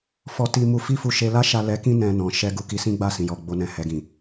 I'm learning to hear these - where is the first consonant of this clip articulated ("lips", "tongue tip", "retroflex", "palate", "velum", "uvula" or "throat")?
lips